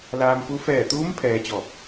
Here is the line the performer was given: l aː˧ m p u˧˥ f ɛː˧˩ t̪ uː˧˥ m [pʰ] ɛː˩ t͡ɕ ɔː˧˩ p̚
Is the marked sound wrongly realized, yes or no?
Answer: no